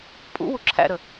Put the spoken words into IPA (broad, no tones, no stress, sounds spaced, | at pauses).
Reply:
pʼ ṵ w u ǁʰ æ̰ ɾ ə